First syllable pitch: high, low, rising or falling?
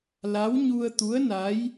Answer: rising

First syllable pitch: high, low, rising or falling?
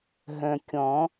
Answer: low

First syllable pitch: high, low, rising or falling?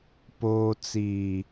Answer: low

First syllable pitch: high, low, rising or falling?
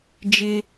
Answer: high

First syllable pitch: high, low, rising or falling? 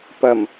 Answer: low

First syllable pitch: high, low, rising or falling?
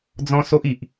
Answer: high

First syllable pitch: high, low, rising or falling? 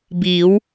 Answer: rising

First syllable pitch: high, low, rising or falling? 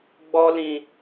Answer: high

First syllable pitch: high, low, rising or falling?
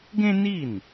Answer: high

